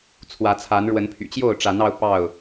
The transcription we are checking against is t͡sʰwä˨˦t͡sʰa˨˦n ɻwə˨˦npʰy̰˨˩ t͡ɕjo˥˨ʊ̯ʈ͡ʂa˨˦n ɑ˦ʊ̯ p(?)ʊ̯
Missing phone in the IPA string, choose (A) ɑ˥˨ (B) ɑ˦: A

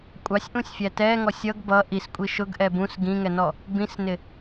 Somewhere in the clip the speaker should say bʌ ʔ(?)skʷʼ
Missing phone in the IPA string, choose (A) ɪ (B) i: B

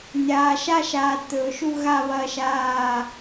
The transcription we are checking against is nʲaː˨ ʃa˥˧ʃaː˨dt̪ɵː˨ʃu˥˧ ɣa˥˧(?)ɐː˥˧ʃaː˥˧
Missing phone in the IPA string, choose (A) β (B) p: A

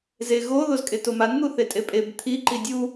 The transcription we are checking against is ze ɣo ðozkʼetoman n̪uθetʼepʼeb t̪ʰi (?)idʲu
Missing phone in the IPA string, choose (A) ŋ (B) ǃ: B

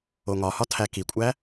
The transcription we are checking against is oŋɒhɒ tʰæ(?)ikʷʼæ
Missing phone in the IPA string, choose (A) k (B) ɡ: A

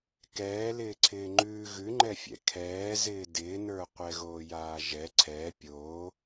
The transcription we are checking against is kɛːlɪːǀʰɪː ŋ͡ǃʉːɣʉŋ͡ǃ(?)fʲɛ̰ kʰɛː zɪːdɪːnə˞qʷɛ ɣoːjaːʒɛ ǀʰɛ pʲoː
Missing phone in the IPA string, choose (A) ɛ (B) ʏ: A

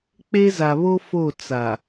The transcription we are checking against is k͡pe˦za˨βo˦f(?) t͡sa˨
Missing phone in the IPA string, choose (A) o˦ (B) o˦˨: B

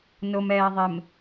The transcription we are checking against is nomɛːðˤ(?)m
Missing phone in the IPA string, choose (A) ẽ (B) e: B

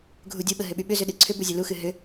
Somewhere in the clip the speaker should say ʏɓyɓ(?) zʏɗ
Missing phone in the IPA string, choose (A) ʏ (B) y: A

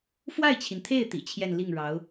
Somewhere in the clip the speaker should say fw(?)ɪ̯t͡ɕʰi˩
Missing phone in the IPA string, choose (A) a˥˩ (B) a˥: A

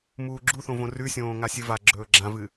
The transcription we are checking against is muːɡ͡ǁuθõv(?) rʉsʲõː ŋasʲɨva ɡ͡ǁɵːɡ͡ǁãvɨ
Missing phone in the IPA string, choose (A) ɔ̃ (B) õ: B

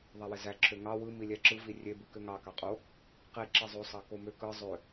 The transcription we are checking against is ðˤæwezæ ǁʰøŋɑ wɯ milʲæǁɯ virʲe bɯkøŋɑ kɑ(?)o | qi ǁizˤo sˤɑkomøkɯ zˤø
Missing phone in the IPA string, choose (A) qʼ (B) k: A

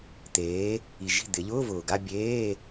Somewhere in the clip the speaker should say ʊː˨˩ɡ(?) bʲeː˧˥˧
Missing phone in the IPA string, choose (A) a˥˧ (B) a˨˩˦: A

